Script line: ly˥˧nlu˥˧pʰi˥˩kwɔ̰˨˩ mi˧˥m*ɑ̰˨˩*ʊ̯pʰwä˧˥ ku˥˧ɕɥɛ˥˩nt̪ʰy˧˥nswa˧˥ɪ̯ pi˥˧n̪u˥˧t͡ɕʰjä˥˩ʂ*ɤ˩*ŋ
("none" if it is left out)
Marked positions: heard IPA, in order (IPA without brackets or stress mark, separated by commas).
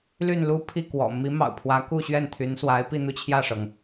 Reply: ɑ̰˨˩, ɤ˩